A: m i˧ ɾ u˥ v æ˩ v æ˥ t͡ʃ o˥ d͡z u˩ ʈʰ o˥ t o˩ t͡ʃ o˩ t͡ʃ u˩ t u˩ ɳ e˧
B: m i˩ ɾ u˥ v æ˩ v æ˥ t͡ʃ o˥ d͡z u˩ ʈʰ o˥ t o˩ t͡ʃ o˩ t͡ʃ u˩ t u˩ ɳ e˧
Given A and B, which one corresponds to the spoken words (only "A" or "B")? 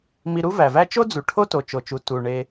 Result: A